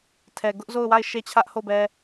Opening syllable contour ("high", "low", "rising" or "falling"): low